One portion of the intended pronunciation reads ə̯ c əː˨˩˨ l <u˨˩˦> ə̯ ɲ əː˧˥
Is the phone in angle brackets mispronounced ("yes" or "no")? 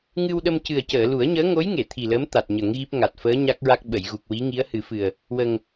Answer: no